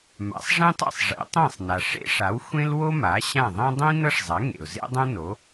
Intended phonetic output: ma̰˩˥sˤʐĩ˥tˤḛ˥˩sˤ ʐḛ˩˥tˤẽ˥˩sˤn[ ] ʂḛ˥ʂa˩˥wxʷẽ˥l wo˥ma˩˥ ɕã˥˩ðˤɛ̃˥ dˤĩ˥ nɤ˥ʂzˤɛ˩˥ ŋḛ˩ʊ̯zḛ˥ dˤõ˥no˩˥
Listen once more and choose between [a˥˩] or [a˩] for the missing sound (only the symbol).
a˩